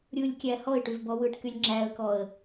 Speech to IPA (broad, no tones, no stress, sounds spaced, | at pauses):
ɾʲ ɯ lʲ kʲ æ h ɔ ɪ̯ ʈ y v b ɔ w ɯ ʈ k y lʲ ŋ͡ǁ æ ə̯ k ɔ ə̯